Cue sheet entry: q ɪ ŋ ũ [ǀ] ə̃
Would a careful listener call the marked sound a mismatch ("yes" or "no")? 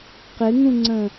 yes